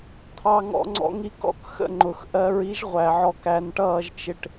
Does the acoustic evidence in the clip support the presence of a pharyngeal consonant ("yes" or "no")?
yes